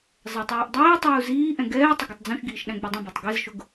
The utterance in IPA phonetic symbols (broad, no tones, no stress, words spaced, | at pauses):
zˤɜtˤɛːʔdˤiːtˤuː ziːʔɛ̃ ɡɛː tˤɪɡʌtˤd͡zũʃɡiːʃ ɗæ̃ɡ͡budˤũbætˤ ɡɛzʃʊɡ